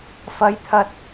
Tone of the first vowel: rising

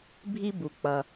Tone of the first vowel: high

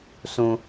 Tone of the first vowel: high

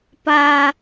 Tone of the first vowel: high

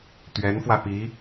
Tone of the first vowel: rising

